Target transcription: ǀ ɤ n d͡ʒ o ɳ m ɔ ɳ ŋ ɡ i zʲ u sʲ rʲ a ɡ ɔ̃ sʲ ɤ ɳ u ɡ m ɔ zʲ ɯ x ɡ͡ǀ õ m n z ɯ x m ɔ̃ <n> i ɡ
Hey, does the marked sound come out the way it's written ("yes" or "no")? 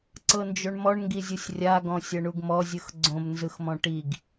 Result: no